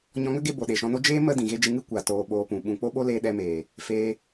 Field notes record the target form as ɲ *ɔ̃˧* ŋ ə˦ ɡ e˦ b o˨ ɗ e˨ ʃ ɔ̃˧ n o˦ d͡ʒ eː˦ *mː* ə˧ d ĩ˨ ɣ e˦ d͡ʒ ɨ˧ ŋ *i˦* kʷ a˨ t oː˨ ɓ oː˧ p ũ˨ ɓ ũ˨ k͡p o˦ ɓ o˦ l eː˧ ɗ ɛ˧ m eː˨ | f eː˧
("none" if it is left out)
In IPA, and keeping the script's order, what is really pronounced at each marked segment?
ɔ̃˧, m, ɨ˦

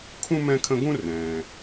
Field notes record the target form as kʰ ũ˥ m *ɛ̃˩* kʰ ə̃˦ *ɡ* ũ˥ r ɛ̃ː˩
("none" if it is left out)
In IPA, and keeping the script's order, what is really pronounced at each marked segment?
ɛ̃˦, ɡ

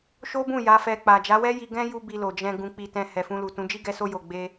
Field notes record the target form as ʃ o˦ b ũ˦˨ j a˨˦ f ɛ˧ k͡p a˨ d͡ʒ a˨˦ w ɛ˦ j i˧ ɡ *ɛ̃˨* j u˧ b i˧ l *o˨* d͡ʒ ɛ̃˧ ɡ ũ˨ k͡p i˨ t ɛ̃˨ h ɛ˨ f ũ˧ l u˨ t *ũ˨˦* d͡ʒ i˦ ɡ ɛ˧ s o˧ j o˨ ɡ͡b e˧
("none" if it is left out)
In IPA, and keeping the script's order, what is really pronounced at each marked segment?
ɛ̃˦, o˨, ũ˨˦

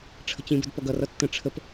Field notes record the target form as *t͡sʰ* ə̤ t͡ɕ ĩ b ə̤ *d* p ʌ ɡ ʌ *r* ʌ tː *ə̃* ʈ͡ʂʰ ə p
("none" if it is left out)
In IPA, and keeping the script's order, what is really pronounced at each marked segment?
ʈ͡ʂʰ, d, r, ə̃

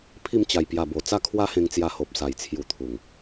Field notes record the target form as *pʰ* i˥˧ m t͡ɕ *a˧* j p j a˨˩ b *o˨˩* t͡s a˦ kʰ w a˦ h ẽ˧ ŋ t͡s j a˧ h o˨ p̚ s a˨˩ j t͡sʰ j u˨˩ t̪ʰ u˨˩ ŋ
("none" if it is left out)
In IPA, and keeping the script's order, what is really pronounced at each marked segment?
pʰ, a˨˩, o˨˩

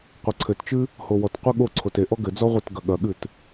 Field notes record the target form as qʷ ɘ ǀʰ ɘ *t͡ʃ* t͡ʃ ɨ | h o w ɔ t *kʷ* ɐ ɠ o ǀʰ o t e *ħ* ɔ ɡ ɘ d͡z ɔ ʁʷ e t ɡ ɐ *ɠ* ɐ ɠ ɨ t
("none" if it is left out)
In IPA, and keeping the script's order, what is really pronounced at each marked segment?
t, qʷ, ʔ, ɠ

